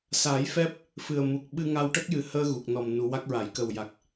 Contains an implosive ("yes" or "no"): yes